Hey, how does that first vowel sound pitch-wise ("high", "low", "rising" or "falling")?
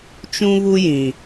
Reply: high